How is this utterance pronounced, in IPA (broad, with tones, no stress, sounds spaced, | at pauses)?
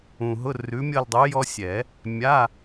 ũ˨ ɦ ʊ˧˥˧ r ʉ˨˥ mʲ ʌ˦˨ l dˤ u˨˥ j ɔ˥ sʲ ɛ˨˩˦ | mʲ a˧˥˧